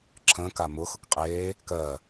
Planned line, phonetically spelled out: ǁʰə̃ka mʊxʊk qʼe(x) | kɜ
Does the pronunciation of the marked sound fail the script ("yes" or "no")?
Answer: yes